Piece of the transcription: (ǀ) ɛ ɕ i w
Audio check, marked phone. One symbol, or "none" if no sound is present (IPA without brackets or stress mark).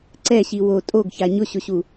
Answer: ǀ